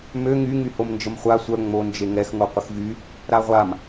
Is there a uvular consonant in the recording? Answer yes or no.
yes